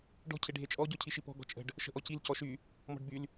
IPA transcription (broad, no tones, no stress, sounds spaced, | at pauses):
ɖ ɔ̤ cʰ e ɖʱ e t͡ʃʼ ɔ ɟ ɔ cʰ i ʃ i p ɔ̤ ɡ ɔ̤ t͡ʃʼ ə̤ ɖ | ʃ ə̤ ʔ ɔ c i l c ɔ ʃ y | m ɔ̤ ɖ b y l